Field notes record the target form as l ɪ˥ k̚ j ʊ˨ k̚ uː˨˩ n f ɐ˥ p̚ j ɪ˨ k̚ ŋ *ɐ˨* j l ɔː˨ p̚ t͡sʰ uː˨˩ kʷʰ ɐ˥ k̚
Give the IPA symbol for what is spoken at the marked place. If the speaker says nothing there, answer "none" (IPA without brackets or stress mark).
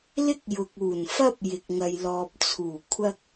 ɐ˨